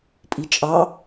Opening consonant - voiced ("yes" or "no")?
no